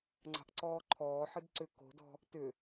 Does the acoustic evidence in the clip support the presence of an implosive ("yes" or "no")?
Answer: no